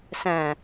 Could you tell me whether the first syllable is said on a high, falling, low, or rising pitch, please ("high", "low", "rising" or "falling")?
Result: low